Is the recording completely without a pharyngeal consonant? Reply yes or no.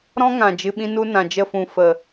yes